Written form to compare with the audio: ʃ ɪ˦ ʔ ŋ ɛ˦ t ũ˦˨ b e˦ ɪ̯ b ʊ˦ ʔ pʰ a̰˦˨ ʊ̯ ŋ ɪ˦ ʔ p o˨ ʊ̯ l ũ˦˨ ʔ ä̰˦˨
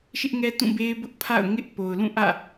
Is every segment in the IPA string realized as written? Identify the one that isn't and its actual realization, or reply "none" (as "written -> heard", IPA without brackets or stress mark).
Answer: none